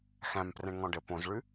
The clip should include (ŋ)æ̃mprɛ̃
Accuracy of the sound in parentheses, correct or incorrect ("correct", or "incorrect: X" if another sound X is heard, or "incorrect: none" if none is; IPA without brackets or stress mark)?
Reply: incorrect: x